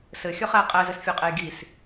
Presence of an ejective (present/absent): present